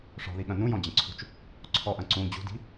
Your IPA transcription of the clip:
ʂ ɔ̤ ð i ɠ ɐ̃ n ũ j ɔ̃ d͡ʑ ɐ̃ ǀʰ ṳ t͡ʃ | ǀʰ ɔ ʔ ɐ̃ ǀ ũ d͡ʑ ṳ d i̤

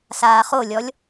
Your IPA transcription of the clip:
s aː χ o lʲ ɔ lʲ

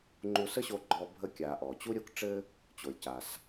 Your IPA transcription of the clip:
ŋ͡ǃ u˧ s ə˥ ɕ o˧ ɡ͡ǃ ɔ˧ bʱ ə˧ kʲ a˩ ʔ ɔ˩ t͡ɕ u˥ ɾʲ o˧ k ʈ͡ʂ ɘ˥ | t͡ɕ o˩ lʲ c a˩ s

